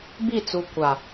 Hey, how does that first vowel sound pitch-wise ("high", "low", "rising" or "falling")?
falling